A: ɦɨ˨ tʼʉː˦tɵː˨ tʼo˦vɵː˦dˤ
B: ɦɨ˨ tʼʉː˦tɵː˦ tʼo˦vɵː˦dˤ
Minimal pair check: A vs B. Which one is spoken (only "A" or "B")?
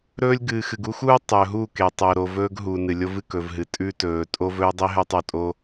A